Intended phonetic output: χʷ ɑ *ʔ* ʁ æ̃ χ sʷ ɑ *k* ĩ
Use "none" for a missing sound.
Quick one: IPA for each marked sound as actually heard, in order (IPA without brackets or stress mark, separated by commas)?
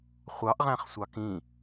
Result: ʔ, k